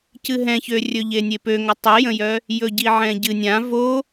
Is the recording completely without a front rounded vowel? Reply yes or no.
no